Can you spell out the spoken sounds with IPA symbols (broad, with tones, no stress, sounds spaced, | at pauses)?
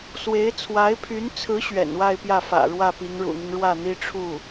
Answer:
s w e˧˥ ɪ̯ t͡sʰ w a˧˥ ɪ̯ pʰ y˧˥ n t͡sʰ ɹ̩˧˥ ɕ ɥ ɛ̰˨˩ n w a˥˧ ɪ̯ p j ä˥˩ f ä̰˨˩ ɻ w ä˥˩ p i˧˥ ŋ ɻ ṵ˨˩ n̪ i˦ ŋ ɻ w ä˥˩ n̪ i˥ ʈ͡ʂʰ u˥˩